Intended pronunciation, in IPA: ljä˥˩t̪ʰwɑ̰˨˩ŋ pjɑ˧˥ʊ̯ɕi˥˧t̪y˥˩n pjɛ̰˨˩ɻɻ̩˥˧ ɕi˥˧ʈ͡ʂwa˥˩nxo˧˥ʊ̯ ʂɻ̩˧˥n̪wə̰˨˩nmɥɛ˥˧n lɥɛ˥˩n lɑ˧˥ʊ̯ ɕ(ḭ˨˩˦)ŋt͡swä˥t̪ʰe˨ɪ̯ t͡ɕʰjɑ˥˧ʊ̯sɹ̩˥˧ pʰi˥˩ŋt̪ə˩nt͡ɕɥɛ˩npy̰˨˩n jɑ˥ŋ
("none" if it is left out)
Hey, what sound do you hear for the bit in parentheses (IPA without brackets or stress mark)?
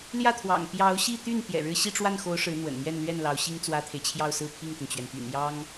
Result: i˥